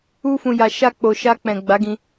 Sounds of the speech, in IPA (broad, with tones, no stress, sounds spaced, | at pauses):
u˧ f ũ˨ j a˨ ʃ a˧ k͡p o˨ ʃ a˧ k͡p ɛ̃˨ ɡ͡b a˨˦ ɡ ĩ˧